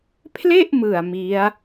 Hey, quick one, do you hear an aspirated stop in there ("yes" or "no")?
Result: yes